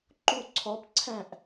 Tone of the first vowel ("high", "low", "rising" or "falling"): falling